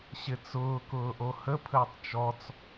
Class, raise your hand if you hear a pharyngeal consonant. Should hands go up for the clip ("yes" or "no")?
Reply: no